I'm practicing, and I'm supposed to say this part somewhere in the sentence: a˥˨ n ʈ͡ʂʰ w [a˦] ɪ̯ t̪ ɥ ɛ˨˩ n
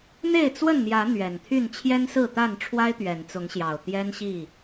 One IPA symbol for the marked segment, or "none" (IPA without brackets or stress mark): a˦